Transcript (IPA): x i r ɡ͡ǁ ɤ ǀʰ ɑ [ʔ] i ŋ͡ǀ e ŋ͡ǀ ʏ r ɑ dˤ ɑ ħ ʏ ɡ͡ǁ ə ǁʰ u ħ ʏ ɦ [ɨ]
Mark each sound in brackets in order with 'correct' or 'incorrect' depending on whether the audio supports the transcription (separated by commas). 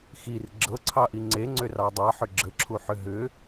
correct, incorrect